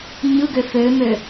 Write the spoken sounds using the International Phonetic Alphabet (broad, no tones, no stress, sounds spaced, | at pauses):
ɲ ɯ ɡ ø f ø m ø